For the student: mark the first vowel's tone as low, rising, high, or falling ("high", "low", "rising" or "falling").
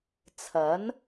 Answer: rising